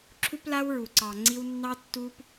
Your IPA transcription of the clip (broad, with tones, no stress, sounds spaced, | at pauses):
ǁʰ u˦ p l a˦ w ɹ u˨ ǀ ɑ˨ ŋ͡ǀ i˦ w nː ɑ˦ tː u˦ p